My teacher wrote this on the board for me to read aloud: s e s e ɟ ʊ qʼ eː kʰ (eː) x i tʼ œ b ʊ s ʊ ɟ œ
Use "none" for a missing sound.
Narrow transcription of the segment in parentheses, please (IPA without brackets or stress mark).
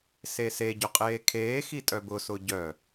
eː